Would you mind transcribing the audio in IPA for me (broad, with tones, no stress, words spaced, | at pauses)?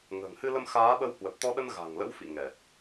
ŋə̤ː˨˩ŋhɨ˧lə˧m xaː˨˦ɓə˧w hwə˨˩p̚t̪ɔ˧ɗə˧n ɣa̤˨˩ŋlə̰˧˥wfḭ˧˨ ŋɛ˨˩t̚